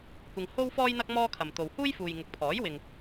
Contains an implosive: no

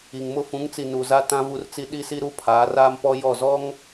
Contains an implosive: yes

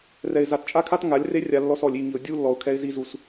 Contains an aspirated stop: yes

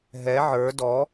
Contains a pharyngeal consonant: yes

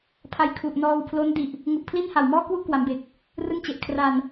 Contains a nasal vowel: no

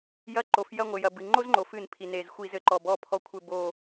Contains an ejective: no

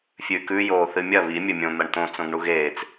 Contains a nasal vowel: yes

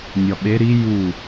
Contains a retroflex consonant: no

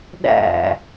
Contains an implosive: yes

